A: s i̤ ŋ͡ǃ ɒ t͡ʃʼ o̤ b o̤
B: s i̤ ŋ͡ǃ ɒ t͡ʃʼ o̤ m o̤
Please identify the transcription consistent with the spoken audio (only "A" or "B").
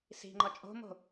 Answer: B